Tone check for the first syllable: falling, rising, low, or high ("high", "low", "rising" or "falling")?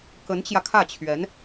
rising